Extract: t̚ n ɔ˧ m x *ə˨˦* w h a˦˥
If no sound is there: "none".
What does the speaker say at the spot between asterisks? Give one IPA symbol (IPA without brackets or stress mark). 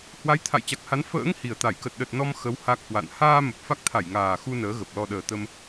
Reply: ə˨˦